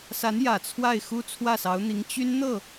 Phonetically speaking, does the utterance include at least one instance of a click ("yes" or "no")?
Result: no